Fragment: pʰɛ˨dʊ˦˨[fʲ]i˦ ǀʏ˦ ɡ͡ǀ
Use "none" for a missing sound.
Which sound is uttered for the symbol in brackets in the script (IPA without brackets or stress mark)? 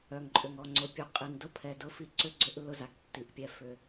f